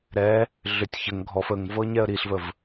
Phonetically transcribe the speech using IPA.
ɾɛ | ɮʏtʲ çəŋ ɡʱɔf əŋvɤ ɲɛə̯ɾiɬvəv

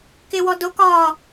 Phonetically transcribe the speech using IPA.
kɪwɔdok ɒ

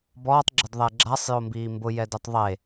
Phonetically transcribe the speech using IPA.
bɔːtˤɡ͡ǁɪdðˤɛ ɡ͡ǁasˤjombiː mbʊjɛdetˤ ðˤe

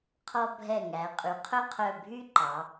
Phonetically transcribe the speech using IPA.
qʰɔ˧bʱɛ˧˩ ŋæ˩˧ə̯qʼy˩˧ qʰœ˥˧qʰœ˧˩bʱy˥ ǃɑ˩˧

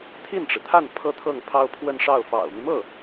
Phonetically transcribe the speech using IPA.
t̪ʰi˥˩nʈ͡ʂɻ̩˩t̪ʰa˥˩n pʰɤ˥t̪ʰɤ˥˩ŋ pʰɑ˥ʊ̯ pʰwə˥˧nʂɑ˥˩ʊ̯ fɑ̰˨˩ʊ̯my˦mɤ˥˩

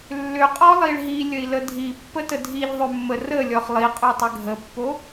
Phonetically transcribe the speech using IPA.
lːʏqʼɔlˠiɭ ɦilʲəi̯lə dʱipːətə dʱiʎðˤʏmːə rəlʲɔχ lˠiqʼotˤʏ ɡʱəpːo

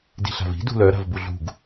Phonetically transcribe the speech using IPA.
di̤ɬa̤vi̤ dṳlœ ɾa̤vbuɮṳɡ

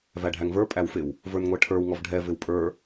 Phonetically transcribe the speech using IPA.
væɖʱæŋvə˞ pʼæwfɪw | və˞nŋʷɛʈʰə˞w ŋɔvɖʱɛ vɪwpʼə˞

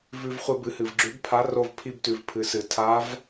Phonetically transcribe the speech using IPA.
vʉ˧vχʷɨ˧bɨ˩˧hɨ˩v ɡ͡ǁʉ˧˥bpʰa˧˥ro˧v pʰi˧btʉ˩v pʰɨ˩˧sɨ˩ tʰa˧˥v

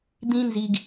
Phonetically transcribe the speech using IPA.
d̪ĩ˦nzi˧ɡ

